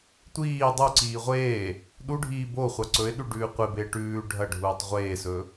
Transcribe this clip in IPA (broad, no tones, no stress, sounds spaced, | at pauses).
tʷ iː dˤ u ǀ iː ʁʷ eː | ɗ u ɖʱ iː b o χʷ a ǀ ɵ ɪ̯ ɗ ʉ ɖ ʉː qʷ e b e ʈ ʉː ɖʱ ɐ ɖʱ uː tˤ ʁʷ eː s ɵ